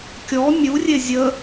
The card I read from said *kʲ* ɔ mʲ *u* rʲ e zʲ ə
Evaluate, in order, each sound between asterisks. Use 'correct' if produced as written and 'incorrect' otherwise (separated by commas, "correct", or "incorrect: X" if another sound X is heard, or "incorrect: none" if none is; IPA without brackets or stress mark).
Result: correct, correct